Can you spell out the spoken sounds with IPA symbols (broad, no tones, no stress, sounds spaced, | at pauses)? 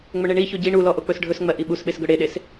ŋ͡m ɵ ɳ e ɳ i ç o ɟ i ɳ u l ɔ ʔ o k͡p ɵ s ɖʱ ɵ s ŋ͡m ɜ ʔ i ɓ u s ɓ e s ɡ ɵ ɽ e ɗ e s